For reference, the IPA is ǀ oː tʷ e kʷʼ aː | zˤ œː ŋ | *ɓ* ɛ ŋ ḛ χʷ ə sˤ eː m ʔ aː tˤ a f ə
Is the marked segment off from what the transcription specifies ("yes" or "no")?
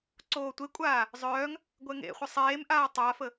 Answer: yes